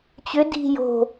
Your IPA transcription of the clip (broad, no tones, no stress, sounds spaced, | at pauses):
t͡ɕ ʏ d i̤ j o̤